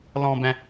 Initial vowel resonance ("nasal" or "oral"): nasal